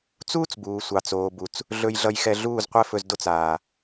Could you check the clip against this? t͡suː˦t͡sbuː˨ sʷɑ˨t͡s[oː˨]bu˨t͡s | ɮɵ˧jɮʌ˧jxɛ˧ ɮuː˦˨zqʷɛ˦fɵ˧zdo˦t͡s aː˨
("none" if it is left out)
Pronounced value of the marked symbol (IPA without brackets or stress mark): oː˨